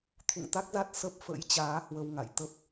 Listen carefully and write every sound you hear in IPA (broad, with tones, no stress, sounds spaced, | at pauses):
t̪ʰ ṵ˧˨ ŋ t̪ a˦˥ k̚ z a˦˥ t̚ s ə˦˥ p̚ f ə̰˧˥ j t͡ɕ aː˨˦ h w ə˧ w ŋ a̰˧˨ j t̪ ə˦˥ p̚